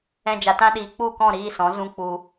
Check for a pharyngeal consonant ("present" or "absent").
absent